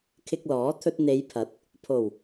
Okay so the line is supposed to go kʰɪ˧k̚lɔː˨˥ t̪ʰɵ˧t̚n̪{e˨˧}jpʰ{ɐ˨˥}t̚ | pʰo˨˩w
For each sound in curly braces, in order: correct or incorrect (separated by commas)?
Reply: correct, correct